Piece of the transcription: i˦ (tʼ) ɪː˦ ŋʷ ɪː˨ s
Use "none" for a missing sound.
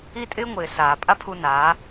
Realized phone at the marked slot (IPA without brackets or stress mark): tʼ